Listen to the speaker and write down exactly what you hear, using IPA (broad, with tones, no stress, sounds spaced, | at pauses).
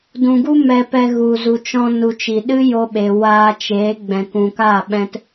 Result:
d ũ˨ ɡ u˦ m ɛ˧ p ɛ˧ ɣ u˨ z u˨ t͡ʃ ɔ̃˧ n u˨ t͡ʃ i˨ ɗ ɨ˦ j o˧ ɓ e˨ w aː˧ t͡ʃ eː˨˦ ɡ͡b ɛ̃˨ k ũ˨ k aː˦˨ ɓ ɛ̃˧ t